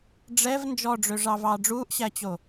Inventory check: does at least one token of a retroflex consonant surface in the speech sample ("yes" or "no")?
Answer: yes